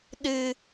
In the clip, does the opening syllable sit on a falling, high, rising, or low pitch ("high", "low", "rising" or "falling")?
low